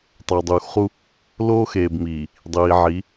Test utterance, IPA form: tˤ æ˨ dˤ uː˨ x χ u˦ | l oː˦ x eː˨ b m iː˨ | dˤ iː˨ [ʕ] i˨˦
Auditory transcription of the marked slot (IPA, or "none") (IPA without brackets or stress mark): ʕ